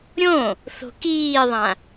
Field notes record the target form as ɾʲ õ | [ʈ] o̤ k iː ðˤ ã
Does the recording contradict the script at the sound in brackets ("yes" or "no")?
yes